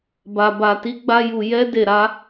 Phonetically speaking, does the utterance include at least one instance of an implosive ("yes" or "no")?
no